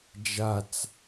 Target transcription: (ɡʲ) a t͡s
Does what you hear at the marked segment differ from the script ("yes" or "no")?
yes